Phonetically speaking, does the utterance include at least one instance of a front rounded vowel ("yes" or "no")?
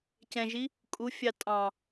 no